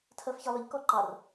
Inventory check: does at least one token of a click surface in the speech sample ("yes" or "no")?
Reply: yes